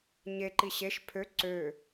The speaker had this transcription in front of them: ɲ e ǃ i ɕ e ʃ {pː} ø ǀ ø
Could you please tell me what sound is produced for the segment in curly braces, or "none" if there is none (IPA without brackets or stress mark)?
pʰ